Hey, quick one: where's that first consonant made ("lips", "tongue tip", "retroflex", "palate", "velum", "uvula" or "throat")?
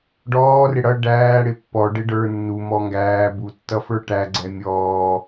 retroflex